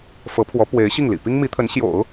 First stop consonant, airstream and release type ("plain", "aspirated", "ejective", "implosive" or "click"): aspirated